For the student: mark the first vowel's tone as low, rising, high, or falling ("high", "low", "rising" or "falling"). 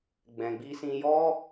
low